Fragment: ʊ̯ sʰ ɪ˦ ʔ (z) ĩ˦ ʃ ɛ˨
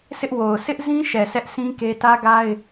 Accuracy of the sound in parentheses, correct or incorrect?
correct